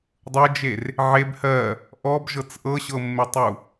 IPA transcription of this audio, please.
dˤɤd͡ʒer | ʕeb hɜ | ʔɔbʒɤt͡s ʔɤɕɤmːetˤu

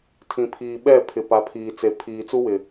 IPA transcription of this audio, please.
tʰĩ˨pʰiː˨ ɓɛ˦˨ pʰɪ˨pa˨˦pʰiː˨t͡se˨ pʰiː˨t͡su˦wɪ˨

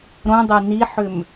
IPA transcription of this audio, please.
ɾõdˤe niħʏm

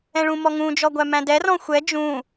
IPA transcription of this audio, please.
ɛ̃ɭũmɔŋũ d͡ʒɔɡʷæmæ̃dɛ rɔ̃xʷɛ d͡ʒũ

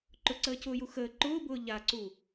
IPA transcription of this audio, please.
ǃʊǀəːcʊːju xəː ǃʊːbʊː ʎaǀu

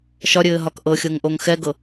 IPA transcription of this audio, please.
ʃɒɾʲɘː ɦɒkʔɤxʲɤŋ ʔoŋxɛɡɤ

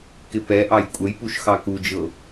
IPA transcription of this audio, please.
kɪpɛʔɑj kʷʼəjpuʃ xɑkud͡ʒɤ

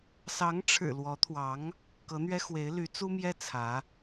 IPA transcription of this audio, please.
sɑ˧˥ŋ ʈ͡ʂʰɻ̩˨˩ lwɔ˧˥t̪ʰwɑ˧˥ŋ | kɤ˧˥n̪ɥɛ˥ xwe˧˥ɪ̯ly˧˥ t͡su˥mjɛ˥ t͡sʰä˧˥

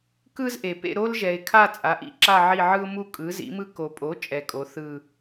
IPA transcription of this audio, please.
kɯ˦zʔe˨ pḛ˦˨ɾo˦lʒɛ˨ɪ̯kʰa˦˨ t͡sʼa˩˥ʔḭ˦˨ǁa˦˨ ʕi˦˨ʕɯ˦ʊ̯ mu˦˨kʼɯ˩˥zḭ˩˥mɯ˦ ko˨pʼo˩˥ t͡ʃʼɛ˨kʼo˩˥ θɯ˦˨

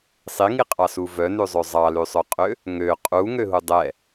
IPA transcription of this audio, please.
sˤiŋiqʼɑsu vœnʉzˤø zˤɑlʉsˤœqʼø | ŋø qʼuŋøɦu dˤɛ

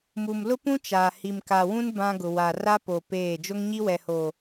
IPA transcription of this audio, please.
mu˨mlʊ˦pũ˦ t͡ʃaː˨hi˨m ka˨wũ˦n bã˦ɡʊ˨wa˨ ra˦po˨ peː˦˨ d͡ʒo˦ŋɲi˦wɛ˨hoː˨

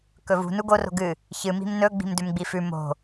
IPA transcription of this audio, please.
kɵvṳ nuɡo ro̤ɡɨ | çɨ mi̤mnɵ ɡ͡bi̤mdʉmɡ͡bifʉ mo̤

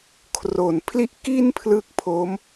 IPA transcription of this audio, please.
kʰro˨˩npʰli˥˩ʔ ki˥˩npʰlɯ˦˥k̚pʰo˦˥m

